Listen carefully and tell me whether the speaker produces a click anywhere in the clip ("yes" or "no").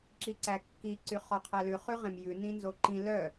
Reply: yes